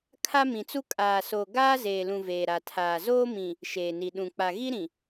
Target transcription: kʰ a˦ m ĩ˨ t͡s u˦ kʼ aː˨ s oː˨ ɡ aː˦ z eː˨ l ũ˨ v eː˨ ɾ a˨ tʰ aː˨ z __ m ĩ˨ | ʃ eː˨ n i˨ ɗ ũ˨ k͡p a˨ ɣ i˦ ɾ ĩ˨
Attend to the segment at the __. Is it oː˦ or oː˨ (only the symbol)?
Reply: oː˦